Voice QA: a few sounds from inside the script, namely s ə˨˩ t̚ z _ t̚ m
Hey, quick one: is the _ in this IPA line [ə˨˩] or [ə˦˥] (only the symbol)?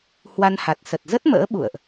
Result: ə˦˥